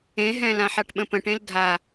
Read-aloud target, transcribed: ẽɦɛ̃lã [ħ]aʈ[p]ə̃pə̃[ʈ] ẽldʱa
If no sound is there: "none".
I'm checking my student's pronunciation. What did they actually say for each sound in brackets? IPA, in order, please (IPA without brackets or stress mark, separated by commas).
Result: ħ, ɓ, ʈ